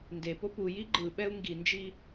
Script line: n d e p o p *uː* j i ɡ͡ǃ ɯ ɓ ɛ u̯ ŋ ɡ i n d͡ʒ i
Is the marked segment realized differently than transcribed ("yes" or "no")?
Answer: yes